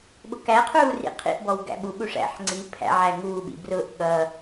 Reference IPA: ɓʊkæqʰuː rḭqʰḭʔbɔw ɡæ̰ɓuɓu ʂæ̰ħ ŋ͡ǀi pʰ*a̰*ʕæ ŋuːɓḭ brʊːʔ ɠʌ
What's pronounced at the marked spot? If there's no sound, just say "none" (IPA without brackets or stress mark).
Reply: æ̰